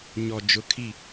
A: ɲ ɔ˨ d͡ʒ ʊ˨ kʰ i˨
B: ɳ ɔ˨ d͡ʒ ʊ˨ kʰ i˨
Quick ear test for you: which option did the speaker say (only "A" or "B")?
A